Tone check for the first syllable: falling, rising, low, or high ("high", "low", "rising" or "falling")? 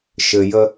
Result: low